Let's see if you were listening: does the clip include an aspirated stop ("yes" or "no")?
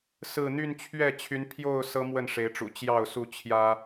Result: yes